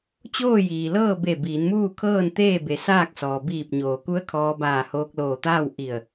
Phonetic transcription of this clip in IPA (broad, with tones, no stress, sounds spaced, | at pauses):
t͡ɕ oː˥˨ j iː˩ l ɤː˥˨ b e˧˩ b iː˩˧ n m uː˥˨ kʰ ɤː˥˨ n t̪ eː˥˨ b e˩˧ s aː˥˨ k̚ s ɔː˩ b iː˧˩ p̚ ɲ oː˩ k u˧˥ ə̯ kʰ ɔː˧ b aː˧˩ h oː˧ k̚ l oː˧˩ t̪ aː˥˨ w ʔ i˧˩ ə̯